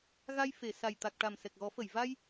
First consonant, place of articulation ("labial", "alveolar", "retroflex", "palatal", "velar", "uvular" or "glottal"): velar